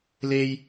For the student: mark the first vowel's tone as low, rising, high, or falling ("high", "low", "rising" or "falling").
high